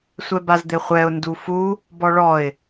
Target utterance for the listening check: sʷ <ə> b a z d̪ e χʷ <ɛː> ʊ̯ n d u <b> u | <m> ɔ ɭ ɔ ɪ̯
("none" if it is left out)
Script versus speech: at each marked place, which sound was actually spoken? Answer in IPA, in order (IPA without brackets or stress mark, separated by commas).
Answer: ɛ, ɛ, f, b